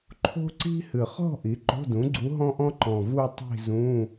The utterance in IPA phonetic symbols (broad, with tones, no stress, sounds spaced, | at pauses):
ǃʰ o̤˥ ǀ i̤˥ h ɨ˨˩ χ ɔ̤˥˧ ʔ i˩˥ ǃ o̤˧˥˧ d ũ˩˥ ɡ͡ǀ u˧˥ ɦ ɔ̃˥ ʔ ɔ̃˥ ǃ ɔ̃˨˩ v u˥˧ tˤ i̤˥˧ z ũ˧˥˧